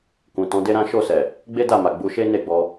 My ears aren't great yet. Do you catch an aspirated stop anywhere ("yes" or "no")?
no